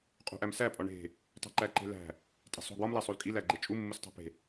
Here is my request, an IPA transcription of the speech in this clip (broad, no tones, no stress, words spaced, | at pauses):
qʼṳʔæmsæ pʼɒɳe̤ | tˤe̤ǃæǃe̤læ̤ | tʼe̤sˤo̤ɡwɒm læsˤolkʼi læɡ͡ǃet͡ʃʼu mːustˤæ̤pe̤